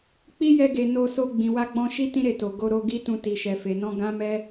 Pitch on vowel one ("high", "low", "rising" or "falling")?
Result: high